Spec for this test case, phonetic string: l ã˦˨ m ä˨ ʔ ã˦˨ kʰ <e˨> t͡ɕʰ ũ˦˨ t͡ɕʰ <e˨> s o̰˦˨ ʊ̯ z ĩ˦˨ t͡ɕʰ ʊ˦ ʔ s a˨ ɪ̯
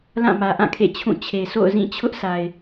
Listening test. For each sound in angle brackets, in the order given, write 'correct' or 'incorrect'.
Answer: incorrect: ḛ˦˨, correct

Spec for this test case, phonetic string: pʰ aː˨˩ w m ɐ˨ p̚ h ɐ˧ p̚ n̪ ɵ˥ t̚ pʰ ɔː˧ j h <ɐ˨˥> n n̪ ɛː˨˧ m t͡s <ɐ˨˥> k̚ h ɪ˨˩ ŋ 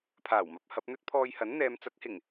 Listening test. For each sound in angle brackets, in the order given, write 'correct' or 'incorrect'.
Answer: correct, correct

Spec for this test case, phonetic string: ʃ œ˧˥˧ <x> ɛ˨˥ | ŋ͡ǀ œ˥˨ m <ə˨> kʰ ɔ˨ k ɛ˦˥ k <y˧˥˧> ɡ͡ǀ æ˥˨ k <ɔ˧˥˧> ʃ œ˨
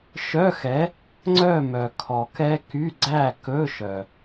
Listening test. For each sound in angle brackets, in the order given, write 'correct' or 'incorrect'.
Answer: correct, incorrect: œ˨, correct, incorrect: ɵ˧˥˧

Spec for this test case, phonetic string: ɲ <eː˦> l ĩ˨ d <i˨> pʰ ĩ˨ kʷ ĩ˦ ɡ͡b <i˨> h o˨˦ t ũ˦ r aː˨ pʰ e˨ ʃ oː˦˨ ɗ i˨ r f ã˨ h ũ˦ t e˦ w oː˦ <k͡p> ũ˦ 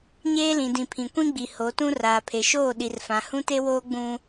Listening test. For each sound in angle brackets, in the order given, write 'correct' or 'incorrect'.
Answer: correct, incorrect: ĩ˨, correct, incorrect: ɡ͡b

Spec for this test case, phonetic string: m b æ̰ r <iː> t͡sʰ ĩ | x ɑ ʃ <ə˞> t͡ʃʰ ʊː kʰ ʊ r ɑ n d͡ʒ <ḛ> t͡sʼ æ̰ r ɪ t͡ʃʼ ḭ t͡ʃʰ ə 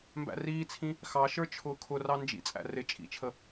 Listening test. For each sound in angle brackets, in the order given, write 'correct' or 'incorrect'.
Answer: correct, correct, incorrect: ḭ

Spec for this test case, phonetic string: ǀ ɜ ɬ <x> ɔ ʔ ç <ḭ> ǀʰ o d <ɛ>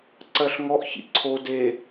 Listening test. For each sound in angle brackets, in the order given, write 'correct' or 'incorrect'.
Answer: incorrect: ŋ, correct, incorrect: e

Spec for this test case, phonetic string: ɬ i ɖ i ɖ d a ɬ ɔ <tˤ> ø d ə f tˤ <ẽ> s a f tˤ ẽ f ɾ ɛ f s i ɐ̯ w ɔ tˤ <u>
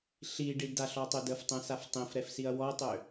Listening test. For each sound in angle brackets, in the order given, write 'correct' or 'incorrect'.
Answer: correct, incorrect: ɛ̃, incorrect: ø

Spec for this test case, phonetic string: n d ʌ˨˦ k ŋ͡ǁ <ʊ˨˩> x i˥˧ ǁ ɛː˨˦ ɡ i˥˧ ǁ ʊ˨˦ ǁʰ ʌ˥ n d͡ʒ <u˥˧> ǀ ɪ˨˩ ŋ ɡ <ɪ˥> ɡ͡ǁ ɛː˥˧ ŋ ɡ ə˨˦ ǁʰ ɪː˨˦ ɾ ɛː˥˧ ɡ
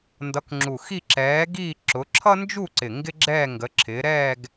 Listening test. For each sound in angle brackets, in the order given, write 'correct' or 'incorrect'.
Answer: incorrect: u˨˩, correct, correct

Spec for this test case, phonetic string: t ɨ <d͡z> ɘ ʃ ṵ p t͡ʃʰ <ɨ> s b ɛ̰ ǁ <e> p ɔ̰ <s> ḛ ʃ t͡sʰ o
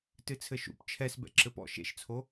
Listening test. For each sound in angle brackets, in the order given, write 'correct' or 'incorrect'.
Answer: incorrect: t͡sʰ, incorrect: ɛ, incorrect: ɘ, incorrect: ʃ

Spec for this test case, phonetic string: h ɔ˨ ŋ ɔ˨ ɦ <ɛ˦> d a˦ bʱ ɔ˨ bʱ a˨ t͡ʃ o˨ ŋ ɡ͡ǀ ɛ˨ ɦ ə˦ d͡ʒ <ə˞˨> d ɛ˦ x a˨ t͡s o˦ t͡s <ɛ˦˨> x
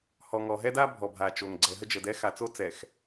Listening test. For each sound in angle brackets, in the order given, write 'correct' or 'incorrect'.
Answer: correct, incorrect: ə˨, incorrect: ɛ˨

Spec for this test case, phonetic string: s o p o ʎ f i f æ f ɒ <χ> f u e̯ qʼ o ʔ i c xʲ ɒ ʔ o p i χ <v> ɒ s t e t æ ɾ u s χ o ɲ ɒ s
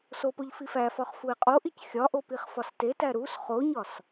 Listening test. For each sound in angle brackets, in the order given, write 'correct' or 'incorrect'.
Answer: correct, incorrect: f

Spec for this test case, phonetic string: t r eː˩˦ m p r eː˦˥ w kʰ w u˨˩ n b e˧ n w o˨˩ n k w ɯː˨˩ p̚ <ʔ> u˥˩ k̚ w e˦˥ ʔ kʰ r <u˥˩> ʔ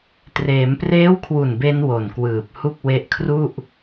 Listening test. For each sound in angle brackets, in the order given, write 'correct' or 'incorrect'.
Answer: incorrect: h, correct

